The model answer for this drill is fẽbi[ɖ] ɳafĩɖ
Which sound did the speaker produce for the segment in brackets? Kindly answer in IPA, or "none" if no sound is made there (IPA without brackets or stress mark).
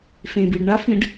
ɖ